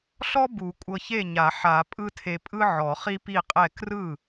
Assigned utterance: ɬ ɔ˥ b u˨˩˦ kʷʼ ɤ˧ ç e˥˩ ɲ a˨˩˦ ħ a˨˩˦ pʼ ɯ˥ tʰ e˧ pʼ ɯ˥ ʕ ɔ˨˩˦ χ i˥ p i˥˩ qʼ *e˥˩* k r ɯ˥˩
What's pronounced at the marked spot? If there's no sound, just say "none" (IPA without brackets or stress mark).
ɛ˥˩